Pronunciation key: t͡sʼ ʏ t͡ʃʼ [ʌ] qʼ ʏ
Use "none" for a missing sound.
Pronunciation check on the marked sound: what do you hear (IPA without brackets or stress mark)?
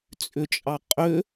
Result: ɑ